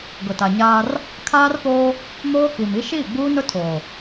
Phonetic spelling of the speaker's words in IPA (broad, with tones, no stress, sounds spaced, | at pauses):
ɡ ʊ˨ t a˨ ɲ aː˦ r | kʰ aː˦ r p oː˦ | m oː˦ k i˨ m i˦ ʃ iː˦˨ ɡ͡b uː˦ n ʊ˦ tʰ oː˨